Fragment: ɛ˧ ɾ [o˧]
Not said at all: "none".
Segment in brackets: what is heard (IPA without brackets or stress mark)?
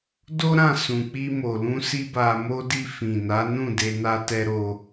o˧